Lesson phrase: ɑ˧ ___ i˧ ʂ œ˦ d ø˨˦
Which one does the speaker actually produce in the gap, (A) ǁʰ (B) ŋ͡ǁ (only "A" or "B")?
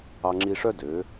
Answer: B